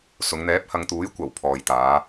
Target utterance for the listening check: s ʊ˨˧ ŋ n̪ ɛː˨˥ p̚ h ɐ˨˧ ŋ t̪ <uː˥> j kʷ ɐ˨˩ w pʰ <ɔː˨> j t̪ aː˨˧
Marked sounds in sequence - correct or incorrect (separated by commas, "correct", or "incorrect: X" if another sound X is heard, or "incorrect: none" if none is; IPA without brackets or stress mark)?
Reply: incorrect: uː˨˥, correct